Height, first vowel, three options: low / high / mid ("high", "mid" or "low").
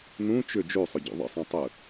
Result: high